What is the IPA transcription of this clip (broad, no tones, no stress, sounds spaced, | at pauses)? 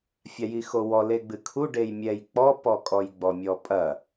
fʲ a j i x o w ɔ l e ɡ͡b ɨ kʰ u ɖ e j mʲ ɛ j k͡p ɔ p ɔ kʼ ɔ j ɡ͡b ɔ mʲ ɔ pʼ ɐ